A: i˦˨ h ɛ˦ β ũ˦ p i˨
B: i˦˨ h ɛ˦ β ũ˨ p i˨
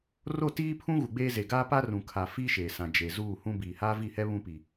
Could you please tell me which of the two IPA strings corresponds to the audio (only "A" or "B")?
A